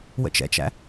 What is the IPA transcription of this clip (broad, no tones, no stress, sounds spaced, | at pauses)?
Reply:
w ə̰ t͡ʃ ɛ̰ t͡ʃ æ̰